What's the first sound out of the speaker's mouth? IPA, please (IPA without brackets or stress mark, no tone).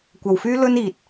kʷ